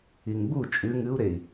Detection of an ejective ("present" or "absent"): present